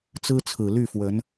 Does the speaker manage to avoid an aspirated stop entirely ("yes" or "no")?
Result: no